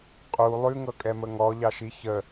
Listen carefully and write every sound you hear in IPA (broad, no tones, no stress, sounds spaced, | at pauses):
qʼ u lˠ ʉ ŋ ɤ kʼ ɛ m ə ŋ ɔ ʎ ɑ ʃ i ç ə